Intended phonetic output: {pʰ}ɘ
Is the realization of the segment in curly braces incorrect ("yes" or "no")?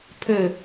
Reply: no